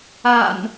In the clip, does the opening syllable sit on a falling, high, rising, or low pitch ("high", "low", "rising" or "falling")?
low